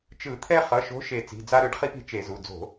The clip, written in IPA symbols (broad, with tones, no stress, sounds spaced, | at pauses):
t͡ʃ ɯ˧˩˧ t̪ʰ ɛ˦ χ ʌ˩˧˩ ʃ o̤˨˥ ʃ e˧˩ t͡s i̤˩˧˩ d͡z a˦ ɾ ɯ˨˥ ɖ χ i˦ p i̤˩˧˩ t͡ʃ e˧˩˧ z u˩˧˩ d͡z o̤˧˩˧